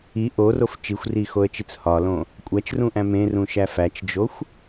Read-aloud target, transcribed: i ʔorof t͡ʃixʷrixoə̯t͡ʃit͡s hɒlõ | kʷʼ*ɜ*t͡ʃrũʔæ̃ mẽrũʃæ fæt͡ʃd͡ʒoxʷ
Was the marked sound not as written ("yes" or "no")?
yes